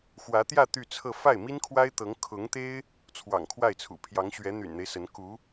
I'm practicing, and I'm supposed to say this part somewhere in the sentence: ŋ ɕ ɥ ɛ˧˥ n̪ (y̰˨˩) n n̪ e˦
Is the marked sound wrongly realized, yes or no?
no